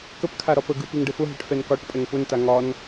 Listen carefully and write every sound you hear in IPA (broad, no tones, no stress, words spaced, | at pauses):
kəpkʰa ɾɒpəɡɯ piŋɖəfʊɦɛʈ fɛnkɒʈpʼɛŋ pʊnta ŋɒn